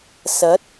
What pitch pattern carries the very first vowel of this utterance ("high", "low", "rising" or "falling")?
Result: rising